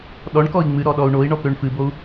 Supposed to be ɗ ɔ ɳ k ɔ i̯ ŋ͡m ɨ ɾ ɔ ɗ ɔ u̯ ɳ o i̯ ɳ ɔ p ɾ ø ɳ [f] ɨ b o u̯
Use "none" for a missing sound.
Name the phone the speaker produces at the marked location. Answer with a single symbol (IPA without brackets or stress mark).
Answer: f